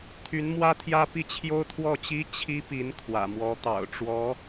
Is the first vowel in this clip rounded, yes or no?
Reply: yes